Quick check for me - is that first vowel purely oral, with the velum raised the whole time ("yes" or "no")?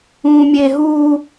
no